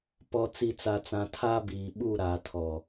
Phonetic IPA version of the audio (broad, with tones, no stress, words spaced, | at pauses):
pɔ˨t͡si˨t͡sa˨t͡sã˨ tʰa˦biː˨ɓu˦˨ ɾa˨tʰɔ˨